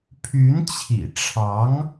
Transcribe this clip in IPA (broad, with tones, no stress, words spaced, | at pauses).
pʰy˧˥nt͡ɕʰḭ˨˩ʈ͡ʂʰɑ˧˥ŋ